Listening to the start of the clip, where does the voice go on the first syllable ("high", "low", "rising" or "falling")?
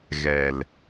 low